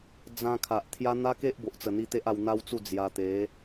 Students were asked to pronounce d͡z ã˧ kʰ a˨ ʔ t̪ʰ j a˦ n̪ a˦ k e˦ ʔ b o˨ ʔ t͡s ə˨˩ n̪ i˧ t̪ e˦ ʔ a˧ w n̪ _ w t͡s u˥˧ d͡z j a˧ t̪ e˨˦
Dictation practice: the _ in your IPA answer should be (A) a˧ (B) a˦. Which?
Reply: B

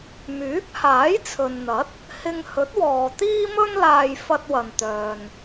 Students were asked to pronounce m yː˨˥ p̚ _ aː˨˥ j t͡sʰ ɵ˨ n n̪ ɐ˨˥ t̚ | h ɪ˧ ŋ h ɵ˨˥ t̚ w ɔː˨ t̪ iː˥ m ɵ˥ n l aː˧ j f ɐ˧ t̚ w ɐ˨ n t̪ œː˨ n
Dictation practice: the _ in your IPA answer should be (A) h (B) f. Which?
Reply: A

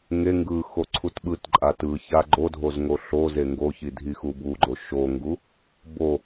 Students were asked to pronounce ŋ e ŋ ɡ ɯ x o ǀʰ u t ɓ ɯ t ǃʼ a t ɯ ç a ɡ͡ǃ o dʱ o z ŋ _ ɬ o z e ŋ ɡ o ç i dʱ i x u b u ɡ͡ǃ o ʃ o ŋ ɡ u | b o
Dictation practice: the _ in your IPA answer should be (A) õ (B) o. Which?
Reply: B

